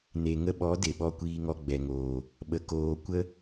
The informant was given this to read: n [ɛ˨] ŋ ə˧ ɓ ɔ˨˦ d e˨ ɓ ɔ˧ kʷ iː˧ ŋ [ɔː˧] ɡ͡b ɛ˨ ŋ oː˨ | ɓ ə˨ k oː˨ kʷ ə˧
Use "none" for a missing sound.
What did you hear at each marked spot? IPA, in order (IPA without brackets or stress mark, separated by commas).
e˨, ɔ˧